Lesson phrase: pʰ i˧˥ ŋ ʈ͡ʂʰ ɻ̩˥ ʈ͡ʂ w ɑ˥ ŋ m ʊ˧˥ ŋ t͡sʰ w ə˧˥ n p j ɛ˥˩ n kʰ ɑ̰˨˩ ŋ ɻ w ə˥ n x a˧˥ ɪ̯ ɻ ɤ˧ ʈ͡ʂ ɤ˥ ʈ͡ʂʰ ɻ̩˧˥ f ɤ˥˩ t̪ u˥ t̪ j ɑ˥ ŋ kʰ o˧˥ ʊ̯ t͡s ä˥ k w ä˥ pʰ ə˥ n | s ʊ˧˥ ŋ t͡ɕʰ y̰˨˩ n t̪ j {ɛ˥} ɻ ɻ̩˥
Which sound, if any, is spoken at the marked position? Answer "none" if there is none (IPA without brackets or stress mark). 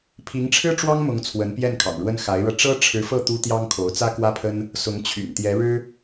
ɛ˧˥